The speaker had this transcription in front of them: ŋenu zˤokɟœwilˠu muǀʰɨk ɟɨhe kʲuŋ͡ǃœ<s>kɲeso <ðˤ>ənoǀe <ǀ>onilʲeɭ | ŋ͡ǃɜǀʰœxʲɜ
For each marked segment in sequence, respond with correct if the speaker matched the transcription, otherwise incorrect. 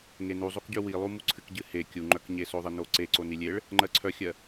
incorrect: none, correct, correct

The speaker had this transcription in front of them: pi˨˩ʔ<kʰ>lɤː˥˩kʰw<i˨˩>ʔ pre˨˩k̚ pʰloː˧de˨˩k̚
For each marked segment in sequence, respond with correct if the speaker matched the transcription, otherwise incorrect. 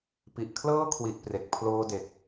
correct, correct

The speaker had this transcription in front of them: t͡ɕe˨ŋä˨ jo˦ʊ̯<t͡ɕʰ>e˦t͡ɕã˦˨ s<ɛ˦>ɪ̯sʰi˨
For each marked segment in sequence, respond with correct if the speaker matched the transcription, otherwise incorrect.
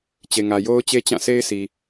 incorrect: t͡ɕ, incorrect: e˦

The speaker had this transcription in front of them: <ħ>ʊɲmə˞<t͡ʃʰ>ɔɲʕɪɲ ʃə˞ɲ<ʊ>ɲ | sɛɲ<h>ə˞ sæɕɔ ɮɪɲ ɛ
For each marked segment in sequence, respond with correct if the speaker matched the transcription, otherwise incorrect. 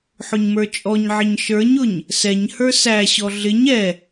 correct, incorrect: t͡ʃʼ, correct, correct

